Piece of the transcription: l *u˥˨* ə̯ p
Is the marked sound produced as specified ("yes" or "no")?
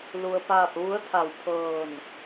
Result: no